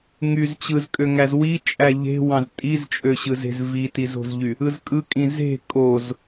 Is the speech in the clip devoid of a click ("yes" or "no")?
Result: yes